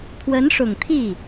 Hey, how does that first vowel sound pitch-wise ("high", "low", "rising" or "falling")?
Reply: rising